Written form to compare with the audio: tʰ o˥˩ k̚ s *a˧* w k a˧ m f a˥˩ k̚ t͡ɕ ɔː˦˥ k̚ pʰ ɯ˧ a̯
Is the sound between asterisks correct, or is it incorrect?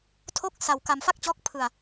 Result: correct